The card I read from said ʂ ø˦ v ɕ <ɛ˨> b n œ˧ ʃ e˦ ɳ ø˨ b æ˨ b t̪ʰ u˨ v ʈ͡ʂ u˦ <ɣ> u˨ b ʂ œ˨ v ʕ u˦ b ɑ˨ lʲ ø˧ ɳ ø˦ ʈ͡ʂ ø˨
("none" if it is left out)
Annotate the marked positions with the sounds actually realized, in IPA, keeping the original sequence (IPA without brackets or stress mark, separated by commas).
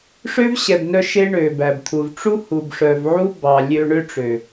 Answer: ɛ˨, h